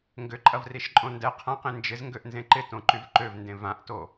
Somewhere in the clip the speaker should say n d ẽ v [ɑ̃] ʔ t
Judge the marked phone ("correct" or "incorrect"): incorrect